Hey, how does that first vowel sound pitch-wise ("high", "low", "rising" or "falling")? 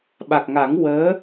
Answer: low